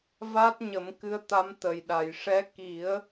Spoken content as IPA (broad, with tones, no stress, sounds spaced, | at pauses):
v a˦˥ t̚ ɲ ə˨˩˦ m k ɨ˧˥ ə̯ t̪ a˧˥ m t̪ ə˨˩ j ɗ a˨˩˨ j ʂ ɛ˧˥ k i˨˩˦ ə̯